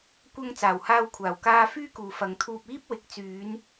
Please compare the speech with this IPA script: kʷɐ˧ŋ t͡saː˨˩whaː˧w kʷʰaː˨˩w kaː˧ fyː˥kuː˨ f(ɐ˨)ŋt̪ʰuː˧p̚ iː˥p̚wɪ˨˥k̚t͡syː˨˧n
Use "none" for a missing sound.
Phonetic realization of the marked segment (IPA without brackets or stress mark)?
ɐ˨